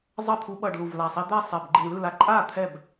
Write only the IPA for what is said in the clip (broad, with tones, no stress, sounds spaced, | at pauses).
zˤ ʌ˥˩ t̪ʰ u˧ ɓ ʌ˨˩ ɖ l u˨˩ v l a˨˩ sˤ i˧ d̪ ɛ˥˩ sˤ ɛ˨˩ b ɡ͡ǃ i˨˩ ɳ l ɯ˥˩ l a˧ ǃʼ a˥˩ t̪ʰ ɛ˥˩ b